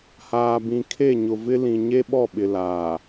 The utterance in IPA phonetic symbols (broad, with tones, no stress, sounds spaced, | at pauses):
h aː˨ b ĩ˨ kʰ e˦˨ ɲ ʊ˨ v ɪ˦ l ĩ˨ ɲ e˦ ɓ ɔ˦˨ ɓ ɪ˨ l aː˨